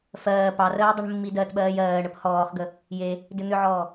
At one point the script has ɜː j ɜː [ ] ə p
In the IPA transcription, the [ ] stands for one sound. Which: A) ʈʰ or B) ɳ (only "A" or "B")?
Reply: B